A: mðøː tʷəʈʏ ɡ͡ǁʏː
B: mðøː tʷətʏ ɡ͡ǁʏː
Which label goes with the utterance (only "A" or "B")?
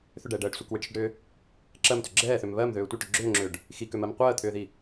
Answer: A